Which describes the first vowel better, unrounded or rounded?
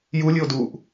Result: rounded